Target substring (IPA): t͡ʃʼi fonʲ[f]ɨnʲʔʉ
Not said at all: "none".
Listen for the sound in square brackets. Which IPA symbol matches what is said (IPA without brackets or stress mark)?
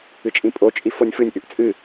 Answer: f